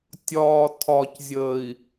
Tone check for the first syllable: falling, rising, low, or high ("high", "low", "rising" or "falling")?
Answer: low